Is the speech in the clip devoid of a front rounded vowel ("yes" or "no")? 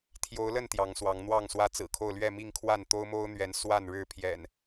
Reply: yes